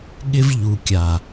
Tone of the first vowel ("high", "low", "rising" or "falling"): high